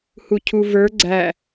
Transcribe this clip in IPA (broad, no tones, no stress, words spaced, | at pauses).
hucʰuvə˞ ɡ͡ǀæ